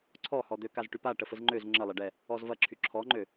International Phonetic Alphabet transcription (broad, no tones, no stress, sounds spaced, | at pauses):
ǀʰ ɔ h ɔ d̪ ø k a z ʈ y p a ʈ ə f ə z ŋ͡ǃ ø z ŋ͡ǁ ə lˠ ɐ ɖ ɛ | ɔ z v ɐ ǁʰ y ǁʰ ɔ ŋ͡ǃ ø